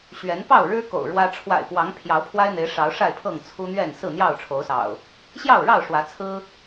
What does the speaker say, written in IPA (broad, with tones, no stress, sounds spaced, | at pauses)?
ɕ ɥ ɛ˨˦ n p ɑ˥˨ ʊ̯ ɻ ɻ̩˦ k o̰˨˩ ʊ̯ ɻ w ä˦ ʈ͡ʂʰ w a̰˨˩ ɪ̯ p w ɑ˨˦ ŋ pʰ j ɑ˨˦ ʊ̯ pʰ w a˦ ɪ̯ n̪ e˨˦ ɪ̯ ʂ ɑ˨˦ ʊ̯ ʂ a˥˨ ɪ̯ pʰ ɤ˥˨ ŋ t͡sʰ u˦ n̪ ɥ ɛ˥˨ n s ɹ̩˥˨ n̪ j ɑ˥˨ ʊ̯ ʈ͡ʂʰ o˨˦ ʊ̯ s ɑ̰˨˩ ʊ̯ | ɕ j ɑ˥˨ ʊ̯ ɻ ɑ˥˨ ʊ̯ ʂ w ä˨˦ t͡sʰ ɹ̩˦